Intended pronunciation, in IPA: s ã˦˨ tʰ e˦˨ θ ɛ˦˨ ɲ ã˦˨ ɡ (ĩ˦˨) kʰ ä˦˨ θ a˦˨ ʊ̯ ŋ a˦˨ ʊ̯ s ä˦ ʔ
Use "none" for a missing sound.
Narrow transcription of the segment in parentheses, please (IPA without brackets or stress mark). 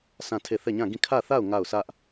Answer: ĩ˦˨